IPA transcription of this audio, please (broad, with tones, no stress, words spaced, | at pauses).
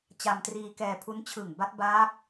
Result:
t͡ɕa˧mtriː˧kɛː˧ pʰu˦˥n t͡ɕʰɯ˨˩ŋba˦˥t̚ baː˦˥k̚